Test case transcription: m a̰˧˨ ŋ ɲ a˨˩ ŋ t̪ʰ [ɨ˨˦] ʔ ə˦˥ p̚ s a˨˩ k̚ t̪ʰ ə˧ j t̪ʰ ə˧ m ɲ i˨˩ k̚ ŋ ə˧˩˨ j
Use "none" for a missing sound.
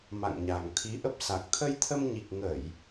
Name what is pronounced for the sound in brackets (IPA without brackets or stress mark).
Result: i˨˦